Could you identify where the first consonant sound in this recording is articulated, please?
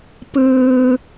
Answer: labial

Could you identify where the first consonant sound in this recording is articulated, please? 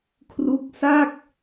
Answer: velar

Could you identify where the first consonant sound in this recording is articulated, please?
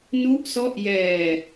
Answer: alveolar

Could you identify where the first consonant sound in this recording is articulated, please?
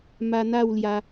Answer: labial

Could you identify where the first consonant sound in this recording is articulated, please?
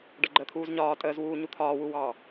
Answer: retroflex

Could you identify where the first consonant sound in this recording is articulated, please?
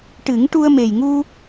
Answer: retroflex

